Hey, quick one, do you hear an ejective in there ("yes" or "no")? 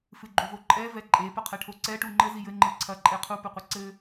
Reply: yes